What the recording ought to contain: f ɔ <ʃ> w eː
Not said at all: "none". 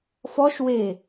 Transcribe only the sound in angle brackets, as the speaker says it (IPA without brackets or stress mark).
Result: ʃ